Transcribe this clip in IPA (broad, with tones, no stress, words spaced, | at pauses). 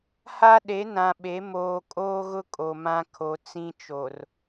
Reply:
ha˦ɗe˨˦ nã˨ɓe˨˦ moː˨kʼoː˦ɣʊ˦ kʼo˨mã˦ kʰo˨ t͡sĩ˦t͡ʃo˨r